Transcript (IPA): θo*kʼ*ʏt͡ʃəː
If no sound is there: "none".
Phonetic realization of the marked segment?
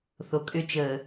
kʼ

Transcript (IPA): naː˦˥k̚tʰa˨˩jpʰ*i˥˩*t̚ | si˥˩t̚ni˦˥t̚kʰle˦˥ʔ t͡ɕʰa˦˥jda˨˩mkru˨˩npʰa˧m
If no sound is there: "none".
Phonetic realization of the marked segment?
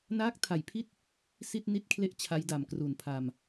i˥˩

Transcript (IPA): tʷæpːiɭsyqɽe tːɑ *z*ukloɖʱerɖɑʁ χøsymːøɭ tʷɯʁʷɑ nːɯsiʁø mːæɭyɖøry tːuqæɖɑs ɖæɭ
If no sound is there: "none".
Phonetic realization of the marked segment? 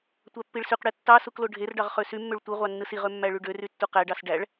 s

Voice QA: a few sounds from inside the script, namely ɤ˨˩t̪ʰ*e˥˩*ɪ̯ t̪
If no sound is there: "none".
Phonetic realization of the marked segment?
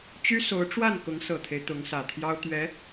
e˦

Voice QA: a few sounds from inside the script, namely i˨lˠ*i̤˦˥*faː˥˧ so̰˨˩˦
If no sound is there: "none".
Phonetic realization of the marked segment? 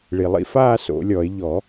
ḭ˦˥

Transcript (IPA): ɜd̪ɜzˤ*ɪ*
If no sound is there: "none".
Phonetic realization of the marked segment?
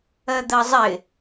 ɪ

